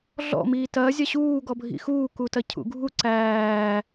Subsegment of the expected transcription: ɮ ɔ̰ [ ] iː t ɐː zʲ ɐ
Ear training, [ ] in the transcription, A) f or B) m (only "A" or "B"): B